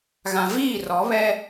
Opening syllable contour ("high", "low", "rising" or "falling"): low